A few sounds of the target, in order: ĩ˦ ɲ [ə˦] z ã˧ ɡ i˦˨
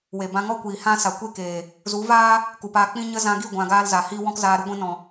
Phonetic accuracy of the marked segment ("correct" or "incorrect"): correct